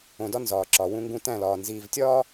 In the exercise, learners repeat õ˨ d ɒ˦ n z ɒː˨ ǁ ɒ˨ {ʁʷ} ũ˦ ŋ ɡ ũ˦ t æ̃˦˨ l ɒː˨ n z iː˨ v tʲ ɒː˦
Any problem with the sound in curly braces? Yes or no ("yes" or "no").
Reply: yes